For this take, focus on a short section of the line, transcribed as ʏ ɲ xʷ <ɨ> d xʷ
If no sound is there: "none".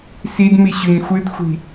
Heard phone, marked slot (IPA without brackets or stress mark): ɨ